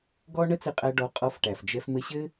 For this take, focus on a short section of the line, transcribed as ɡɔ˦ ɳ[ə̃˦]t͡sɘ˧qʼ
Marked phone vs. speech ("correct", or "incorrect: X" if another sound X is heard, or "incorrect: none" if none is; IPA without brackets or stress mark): incorrect: ə˦